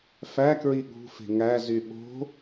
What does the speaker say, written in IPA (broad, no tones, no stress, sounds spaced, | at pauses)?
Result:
f æ k ɹ i ɠ ṳ f e̤ ŋ æ z y ɓ o̤